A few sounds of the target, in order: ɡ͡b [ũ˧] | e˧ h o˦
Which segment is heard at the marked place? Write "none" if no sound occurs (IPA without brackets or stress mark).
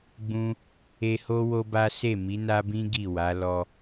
ũ˧